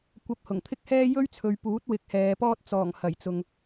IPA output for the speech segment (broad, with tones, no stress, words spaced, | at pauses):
kʷɐ˧p̚hʊ˨˩ŋt̪ʰɪ˥k̚hɛː˥ jɵ˥ɥt͡sʰɵ˨˧ɥpuː˨˥t̚ wɪ˨˥k̚hɛː˨˧pɔː˥t̚ t͡sɔː˨˩ŋ hɐ˨˩jt͡sʊ˨ŋ